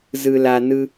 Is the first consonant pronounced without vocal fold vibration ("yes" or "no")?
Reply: no